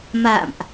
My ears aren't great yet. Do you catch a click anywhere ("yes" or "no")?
no